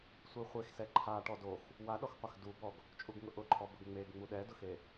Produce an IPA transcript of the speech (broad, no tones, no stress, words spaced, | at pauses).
sʷiχʷex sɛǃʰa ʈɔdox | waɗɔxqʷax dubɔɡ | t͡ʃʼuɡŋʊʔʊǃʰɔ bʊɡŋ͡meɡ ŋ͡muɗɛdʊxe